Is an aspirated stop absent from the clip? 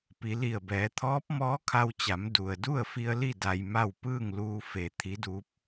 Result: no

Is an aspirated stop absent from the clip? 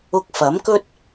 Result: yes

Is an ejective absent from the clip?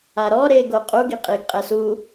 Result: no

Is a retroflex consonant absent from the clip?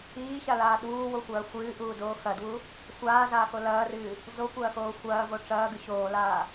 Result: no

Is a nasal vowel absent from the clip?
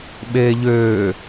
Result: yes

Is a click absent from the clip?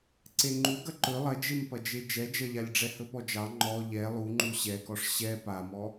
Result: no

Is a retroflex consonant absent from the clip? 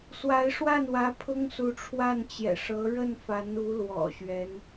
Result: no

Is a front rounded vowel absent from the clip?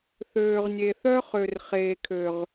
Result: no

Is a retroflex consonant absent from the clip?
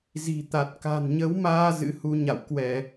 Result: yes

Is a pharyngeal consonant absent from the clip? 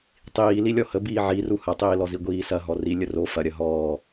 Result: no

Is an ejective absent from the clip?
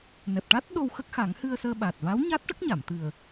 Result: yes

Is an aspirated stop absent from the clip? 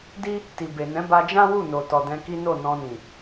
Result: yes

